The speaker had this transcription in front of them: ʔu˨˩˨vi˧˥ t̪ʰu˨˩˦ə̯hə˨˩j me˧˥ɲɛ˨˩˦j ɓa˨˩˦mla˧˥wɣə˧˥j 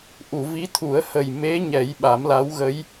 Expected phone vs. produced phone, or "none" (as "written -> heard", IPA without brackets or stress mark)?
none